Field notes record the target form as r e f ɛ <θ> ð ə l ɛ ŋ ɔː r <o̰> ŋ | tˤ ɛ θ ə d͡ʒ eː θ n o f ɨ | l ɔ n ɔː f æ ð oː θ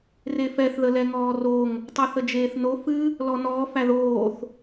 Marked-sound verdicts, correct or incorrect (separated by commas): correct, incorrect